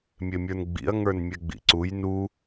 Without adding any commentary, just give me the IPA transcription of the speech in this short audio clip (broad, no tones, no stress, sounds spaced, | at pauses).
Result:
mʲ e mʲ ə˞ n ɡ͡b ḭ ɐ̯ ŋ ə˞ n mʲ ɛ ɡ͡b ḭ ǀ u j n u